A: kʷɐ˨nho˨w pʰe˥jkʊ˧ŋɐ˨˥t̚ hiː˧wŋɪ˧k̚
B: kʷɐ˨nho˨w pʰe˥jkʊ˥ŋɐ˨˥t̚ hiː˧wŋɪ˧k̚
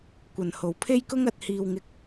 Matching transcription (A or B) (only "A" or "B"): B